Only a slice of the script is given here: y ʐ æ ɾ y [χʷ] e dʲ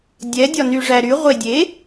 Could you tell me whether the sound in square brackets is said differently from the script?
yes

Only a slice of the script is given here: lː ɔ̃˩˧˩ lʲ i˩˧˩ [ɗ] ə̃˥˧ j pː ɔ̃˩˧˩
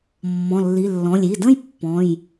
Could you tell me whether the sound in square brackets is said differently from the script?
yes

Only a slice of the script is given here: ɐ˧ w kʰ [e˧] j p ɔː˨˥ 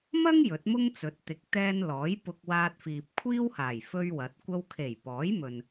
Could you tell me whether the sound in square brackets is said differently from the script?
yes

